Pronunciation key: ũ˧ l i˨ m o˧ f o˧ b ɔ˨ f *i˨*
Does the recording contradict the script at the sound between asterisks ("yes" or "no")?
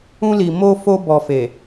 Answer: yes